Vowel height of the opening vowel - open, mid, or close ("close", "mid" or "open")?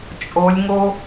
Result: mid